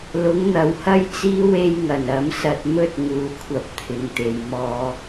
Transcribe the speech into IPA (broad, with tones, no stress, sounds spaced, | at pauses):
l ʊ˨˥ ŋ n̪ ɐ˨ w h ɐ˥ j t͡s iː˥ w e˥ j ŋ ɐ˨˩ n ɐ˨˥ m s ɐ˧ t̚ m ɵ˥ t̚ ŋ uː˨ kʷʰ ɐ˧ p̚ t̪ʰ ɪ˨ ŋ t̪ e˨ j m ɔː˧